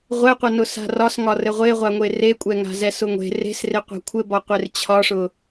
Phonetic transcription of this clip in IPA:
ʁʷ ɛ qʷ ɛ n ʊ s a̤ r ɒ s ŋ ɒ r ɘ ʁʷ e ʁʷ a ŋʷ e r e kʷʼ ɛ ŋ a̤ z ɛ s ʊ ŋʷ e̤ r e̤ s r e qʷ a̤ kʷʰ ɘ b ɒ qʷ e r t͡ɕʰ ɒ ʂ ʊ

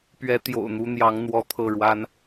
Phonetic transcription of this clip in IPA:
p ɥ ɛ˧˥ t̪ j o̰˨˩ ʊ̯ n̪ u˧˥ n̪ j ɑ˧˥ ŋ n̪ w ɔ˧˥ t̪ʰ ɤ˥˩ ɻ w a˥ n

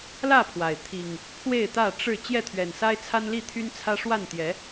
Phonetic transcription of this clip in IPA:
l ä˥˨ pʰ w a˩ ɪ̯ t̪ʰ i˨˩ ŋ | pʰ w e˥˨ ɪ̯ t̪ ä˥˨ ʈ͡ʂ ɻ̩˥˨ t͡ɕ j ɛ˥˨ t̪ʰ ɥ ɛ˨˩ n s a˦ ɪ̯ t͡sʰ a˦ n l i˥˨ t̪ʰ y˦ n t͡sʰ ä˦ ʂ w a˥˨ n t̪ j ɛ˨˦

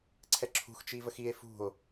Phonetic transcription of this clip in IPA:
ǀʰ ɛ ǁʰ ṳ x t͡ʃ i v ə x i e̯ f ṳ o̯

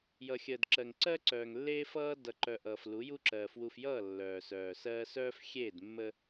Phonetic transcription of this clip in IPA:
j ʌ˨ xʲ əː˨ d ǁ ɜ˨ ŋ ǀ ɜ˦ ǀ œː˨ ŋ lː eː˦ f ʌː˦ d ʌ˨ ǃ œ˨ ʔ ʌː˨ f l u˨˦ j u˦ ǁ ɜː˨ f w u˨ f j ʌː˦˨ lː œː˨ s œː˨ s ɜː˦ s œː˦ f xʲ eː˦˨ d mː ə˦

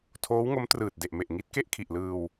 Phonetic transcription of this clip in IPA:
tʰ oː˦˥ w ŋ o˦˥ m t r ɯː˨˩ t̚ d e˨˩ ʔ m e˨˩ ʔ ŋ i˦˥ t̚ k e˥˩ ʔ kʰ i˨˩ ʔ l ɯː˧ w

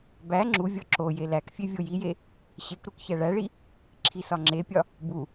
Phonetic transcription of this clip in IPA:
b æ ŋ͡ǁ u vʲ ɒ ǁ o j e l æ k fʲ e vʲ o j i j e | ɕ e k ɾ u k ç æ ɭ æ ɭ i | ǁʰ i s ɒ ŋ͡ǁ e pʲ ɒ | b u

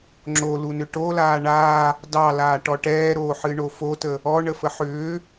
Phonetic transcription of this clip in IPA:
ŋ͡ǁ o l u n ʏ ʈ o l aː ɳ aː | d ɑ l aː ʈ ɔ ʈ ɛː ɾ oː ħ ɨ ɳ o f o t ə | ɔ ɳ ə f ə ħ ʏː

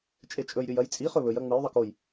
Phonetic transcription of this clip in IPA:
t͡ʃʼ e t͡ʃʼ ɵ j ɾʲ ɵ j ɐ j t͡sʼ i χ ɵ β ɵ j ɐ ŋ͡m ɨ j ðˤ ɨ k o j

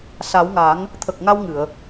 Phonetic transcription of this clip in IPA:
s a˨˩˦ w ŋ a˨˩˦ ŋ | t̪ʰ ə˨˩ k̚ ŋ a˧ w ŋ ɨ˨˩˨ ə̯

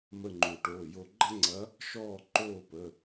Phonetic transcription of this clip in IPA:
m ə˦˨ ŋ͡ǃ u˨˩˦ ʈ oː˩˧˩ j o˦˨ ɡ͡ǃ ɐ˥ ŋ͡ǀ ɐ˧˥ | ʃ ɔː˦˨ ǃ oː˦˨ p ə˩˧˩

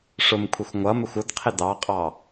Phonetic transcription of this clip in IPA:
ʂ ʊ m kʷʰ ɪ xʷ ŋʷ ʌ m ɪ xʷ ʊ d qʰ ɪ d ɑ qʼ ɑ

